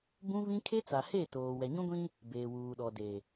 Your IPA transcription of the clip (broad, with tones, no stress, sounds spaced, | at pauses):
b ũ˦ v ĩ˦ kʰ e˦ t͡s a˨ h e˦˨ t oː˨ w ɛ˨ ɲ ũ˦ ɡʷ ĩ˦ | b eː˨ w uː˨ ɗ ɔ˨ d e˨